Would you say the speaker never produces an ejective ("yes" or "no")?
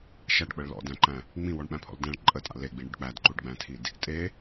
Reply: no